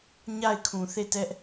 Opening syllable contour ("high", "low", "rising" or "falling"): falling